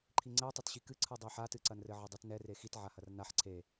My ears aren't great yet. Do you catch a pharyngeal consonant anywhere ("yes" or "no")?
yes